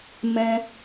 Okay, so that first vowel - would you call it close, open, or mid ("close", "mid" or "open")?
mid